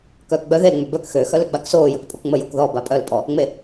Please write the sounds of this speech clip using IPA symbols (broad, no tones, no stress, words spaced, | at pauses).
kœːkɡ͡bœ ðel ŋ͡møbœk xø xœløɡ͡baksoː jœkpʼokŋ͡mə jokðɔ bapʼœl pʼɔ | ŋ͡me